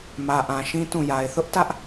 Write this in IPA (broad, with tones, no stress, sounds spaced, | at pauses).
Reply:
m ä˨ ʔ ã˨ ʃ ĩ˦ t ũ˦˨ j a˨ ɪ̯ θ ʊ˦ ʔ t ä˦ ʔ